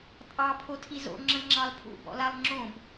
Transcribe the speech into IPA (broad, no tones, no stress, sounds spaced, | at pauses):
tʼ ɑ pʰ o tʰ i z o̰ ŋ͡ǁ ə̃ ŋ͡ǁ ɑ l pʰ ṵ b ɔ̰ l a lˠ ŋ͡ǁ õ b